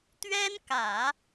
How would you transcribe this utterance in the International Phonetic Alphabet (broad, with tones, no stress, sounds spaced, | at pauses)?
t̪ ɥ ɛ˥ n k ä˨˩˦